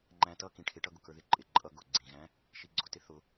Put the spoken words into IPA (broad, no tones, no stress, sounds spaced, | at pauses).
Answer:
ŋ͡ǃ æ̃ t ʌ k ĩ ʈʰ ɪ ʈ ʌ ɡ ʊ k ə˞ ð ɪ ǃʼ ɪ ǃʼ ʌ ɡ ʊ ɡ͡ǀ ĩ ɣ æ̃ | ʃ i ɡ͡ǀ ʊ t ɪ θ ʊ